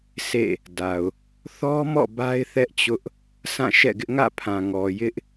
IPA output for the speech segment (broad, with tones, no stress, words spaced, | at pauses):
sḛ˦˨ | da˨ʊ̯ | θɔ˦mɔ̰˦˨ ba˦ɪ̯θɛ˦ʔt͡ɕʊ˦ʔ | sʰã˦˨ʃɛ̰˦˨ɡɪ˦ʔ ŋä̰˦˨pʰã˨ ŋɔ˨jɪ˦ʔ